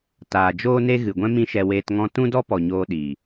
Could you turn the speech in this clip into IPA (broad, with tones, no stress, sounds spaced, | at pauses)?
t aː˨ d͡ʒ oː˦ n e˦ ɣ ɨ˨ ɡʷ ɛ̃˦ m ĩ˦ ʃ ɛ˧ w eː˧ t ŋ ɔ̃˦ t ũ˦ d ɔ˦ p ɔ˨ ɲ oː˧ ɗ i˨